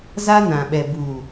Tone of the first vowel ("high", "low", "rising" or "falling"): high